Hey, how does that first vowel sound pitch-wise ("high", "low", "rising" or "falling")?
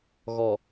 low